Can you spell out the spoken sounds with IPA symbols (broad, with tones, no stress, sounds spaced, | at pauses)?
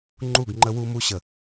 ŋ͡ǃ u˦˨ ɡ ŋ͡ǃ ə˦ w u˦ m u˦ ɕ ə˨